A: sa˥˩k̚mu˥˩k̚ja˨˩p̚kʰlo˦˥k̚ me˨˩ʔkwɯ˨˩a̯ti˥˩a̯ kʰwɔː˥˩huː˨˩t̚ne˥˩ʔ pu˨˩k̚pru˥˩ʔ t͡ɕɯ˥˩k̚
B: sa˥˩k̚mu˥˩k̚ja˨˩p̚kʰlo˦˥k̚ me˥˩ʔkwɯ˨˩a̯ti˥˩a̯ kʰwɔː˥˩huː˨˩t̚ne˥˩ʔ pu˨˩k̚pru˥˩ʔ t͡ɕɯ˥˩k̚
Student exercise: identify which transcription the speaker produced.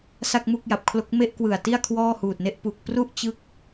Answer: B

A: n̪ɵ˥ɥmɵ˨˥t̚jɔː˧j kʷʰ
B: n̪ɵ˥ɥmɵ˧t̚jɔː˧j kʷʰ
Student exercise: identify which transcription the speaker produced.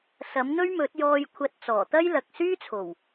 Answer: A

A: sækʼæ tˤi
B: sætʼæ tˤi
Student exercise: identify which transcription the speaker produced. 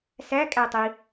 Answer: A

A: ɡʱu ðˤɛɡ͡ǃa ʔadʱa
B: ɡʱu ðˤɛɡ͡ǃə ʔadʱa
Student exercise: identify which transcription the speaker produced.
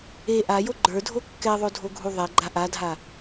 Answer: A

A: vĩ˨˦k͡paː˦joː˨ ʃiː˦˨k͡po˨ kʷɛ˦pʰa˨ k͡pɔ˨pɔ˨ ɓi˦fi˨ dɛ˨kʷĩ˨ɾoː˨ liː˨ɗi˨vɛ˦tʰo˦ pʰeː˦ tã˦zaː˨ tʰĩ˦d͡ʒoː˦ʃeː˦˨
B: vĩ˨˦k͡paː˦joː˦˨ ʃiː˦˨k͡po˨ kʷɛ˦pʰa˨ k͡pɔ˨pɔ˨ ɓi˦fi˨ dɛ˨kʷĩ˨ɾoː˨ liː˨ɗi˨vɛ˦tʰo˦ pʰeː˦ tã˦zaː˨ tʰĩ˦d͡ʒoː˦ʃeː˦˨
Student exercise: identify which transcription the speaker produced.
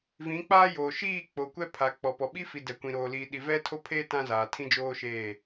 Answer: A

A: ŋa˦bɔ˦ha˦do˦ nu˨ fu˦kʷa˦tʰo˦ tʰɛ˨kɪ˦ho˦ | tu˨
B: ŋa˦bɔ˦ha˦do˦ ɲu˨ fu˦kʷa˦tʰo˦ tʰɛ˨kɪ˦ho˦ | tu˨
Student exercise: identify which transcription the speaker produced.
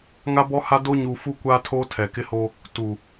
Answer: B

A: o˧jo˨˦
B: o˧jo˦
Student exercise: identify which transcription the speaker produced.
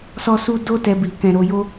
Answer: B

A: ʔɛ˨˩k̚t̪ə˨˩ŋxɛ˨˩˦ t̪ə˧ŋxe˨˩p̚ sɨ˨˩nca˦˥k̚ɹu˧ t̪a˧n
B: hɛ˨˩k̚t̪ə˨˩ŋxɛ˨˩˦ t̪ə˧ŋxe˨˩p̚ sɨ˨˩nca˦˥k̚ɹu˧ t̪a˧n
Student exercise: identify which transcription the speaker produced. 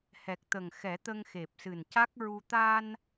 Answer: B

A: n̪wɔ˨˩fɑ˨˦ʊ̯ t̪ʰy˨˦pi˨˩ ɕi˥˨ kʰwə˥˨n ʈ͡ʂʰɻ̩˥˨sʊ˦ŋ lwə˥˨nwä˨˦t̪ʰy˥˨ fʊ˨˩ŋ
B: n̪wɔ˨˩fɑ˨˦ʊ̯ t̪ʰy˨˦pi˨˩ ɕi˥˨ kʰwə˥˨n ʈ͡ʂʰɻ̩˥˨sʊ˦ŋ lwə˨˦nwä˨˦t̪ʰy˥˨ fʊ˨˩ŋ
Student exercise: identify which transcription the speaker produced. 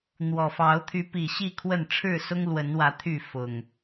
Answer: B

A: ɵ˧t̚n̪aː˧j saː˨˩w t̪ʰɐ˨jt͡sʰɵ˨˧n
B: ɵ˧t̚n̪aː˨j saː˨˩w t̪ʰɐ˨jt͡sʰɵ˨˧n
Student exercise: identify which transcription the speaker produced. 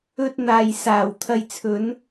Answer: B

